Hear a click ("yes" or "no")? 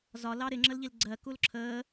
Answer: yes